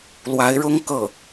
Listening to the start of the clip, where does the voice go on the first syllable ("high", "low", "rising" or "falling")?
rising